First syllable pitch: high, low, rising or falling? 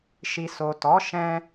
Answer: low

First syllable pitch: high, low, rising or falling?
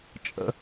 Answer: high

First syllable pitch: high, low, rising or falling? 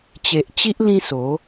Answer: low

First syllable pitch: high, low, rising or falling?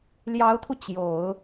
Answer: rising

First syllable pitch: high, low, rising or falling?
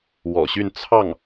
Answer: low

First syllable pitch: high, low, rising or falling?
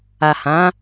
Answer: low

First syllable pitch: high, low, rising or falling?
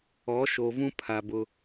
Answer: rising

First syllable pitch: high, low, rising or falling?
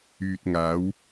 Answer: low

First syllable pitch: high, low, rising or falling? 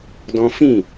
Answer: high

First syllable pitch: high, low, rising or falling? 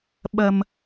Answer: low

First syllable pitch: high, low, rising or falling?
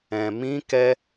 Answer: low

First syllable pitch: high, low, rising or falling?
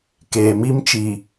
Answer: low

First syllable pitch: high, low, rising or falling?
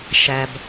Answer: low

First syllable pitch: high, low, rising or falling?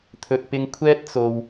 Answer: low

